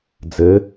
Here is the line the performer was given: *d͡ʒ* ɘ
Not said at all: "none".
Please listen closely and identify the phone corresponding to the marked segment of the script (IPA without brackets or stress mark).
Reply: d͡z